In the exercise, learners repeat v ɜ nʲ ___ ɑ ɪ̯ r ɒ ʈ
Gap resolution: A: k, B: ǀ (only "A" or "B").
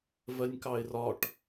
A